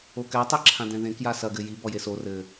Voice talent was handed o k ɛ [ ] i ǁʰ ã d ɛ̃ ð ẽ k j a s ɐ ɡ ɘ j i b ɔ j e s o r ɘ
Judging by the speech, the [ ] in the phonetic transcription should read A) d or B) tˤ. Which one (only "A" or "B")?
B